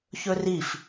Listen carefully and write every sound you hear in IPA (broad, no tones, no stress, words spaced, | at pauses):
çɵrif